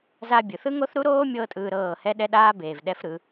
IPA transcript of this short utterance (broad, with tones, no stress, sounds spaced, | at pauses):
z a˧ bʲ ɯ˨ θ ɯ˦ ŋ o˦ θ ɾ u˦ ɾ oː˦ mʲ ɤː˦ tʼ ɯː˧ ɾ ɤː˦˨ h ɛ˦ ɗ ɛ˦ ɗ aː˦ b eː˨ v ɗ ɛ˦ f ɾ ɯ˨˦